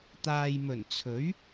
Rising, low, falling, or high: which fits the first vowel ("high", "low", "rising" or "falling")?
low